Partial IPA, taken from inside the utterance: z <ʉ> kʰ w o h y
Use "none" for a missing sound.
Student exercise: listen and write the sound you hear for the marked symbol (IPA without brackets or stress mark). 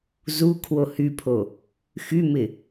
u